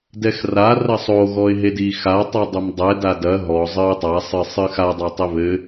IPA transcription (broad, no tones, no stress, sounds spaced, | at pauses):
d ɛ x r a r ɐ sˤ o ɣ ɔ ɪ̯ ɦ e d i x a tˤ i dˤ o m dˤ ɛ d a d ɐ ɦ ɔ zˤ ɨ ʊ̯ tˤ a sˤ ɨ sˤ ɨ x a dˤ a tˤ e β ɘ